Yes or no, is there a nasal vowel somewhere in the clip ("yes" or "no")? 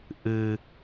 no